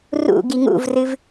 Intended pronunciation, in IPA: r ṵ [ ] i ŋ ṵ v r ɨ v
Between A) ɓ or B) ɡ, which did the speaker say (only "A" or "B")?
B